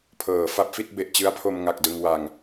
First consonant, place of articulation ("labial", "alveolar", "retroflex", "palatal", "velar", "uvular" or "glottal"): labial